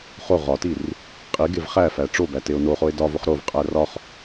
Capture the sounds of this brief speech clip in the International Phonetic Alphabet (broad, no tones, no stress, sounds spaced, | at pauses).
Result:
χ o ʁ ɒ t i r | qʼ i ɡ e v χ æ f æ ʈ͡ʂ o b æ t e o̯ n o χ o e̯ d ɒ v o χ ɾ o v qʼ æ r ɒ χ